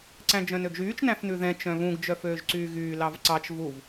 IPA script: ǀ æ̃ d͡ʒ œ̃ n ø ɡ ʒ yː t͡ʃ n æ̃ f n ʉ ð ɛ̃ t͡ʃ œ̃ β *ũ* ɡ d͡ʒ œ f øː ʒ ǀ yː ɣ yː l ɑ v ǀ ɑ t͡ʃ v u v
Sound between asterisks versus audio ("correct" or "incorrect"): correct